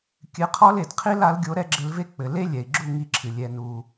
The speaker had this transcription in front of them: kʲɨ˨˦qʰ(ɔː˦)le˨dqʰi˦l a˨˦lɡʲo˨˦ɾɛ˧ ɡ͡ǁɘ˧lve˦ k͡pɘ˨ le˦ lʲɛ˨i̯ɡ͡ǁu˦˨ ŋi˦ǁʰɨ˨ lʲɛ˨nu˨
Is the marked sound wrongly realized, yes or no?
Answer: yes